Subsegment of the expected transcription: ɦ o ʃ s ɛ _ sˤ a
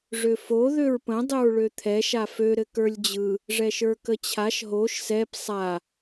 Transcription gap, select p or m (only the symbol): p